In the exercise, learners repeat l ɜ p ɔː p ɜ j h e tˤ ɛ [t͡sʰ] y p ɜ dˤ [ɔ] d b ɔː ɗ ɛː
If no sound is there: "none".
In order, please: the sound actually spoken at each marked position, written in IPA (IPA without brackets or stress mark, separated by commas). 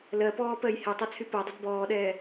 t͡sʰ, ə